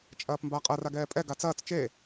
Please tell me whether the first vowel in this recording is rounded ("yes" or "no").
no